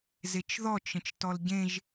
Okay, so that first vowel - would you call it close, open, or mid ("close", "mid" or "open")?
mid